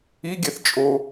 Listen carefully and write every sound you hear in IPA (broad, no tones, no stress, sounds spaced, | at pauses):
i ɡʲ ɛ θ t͡ʃʼ o